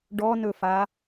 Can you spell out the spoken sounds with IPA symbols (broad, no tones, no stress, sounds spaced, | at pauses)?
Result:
ɖ ɔ n ɵ f a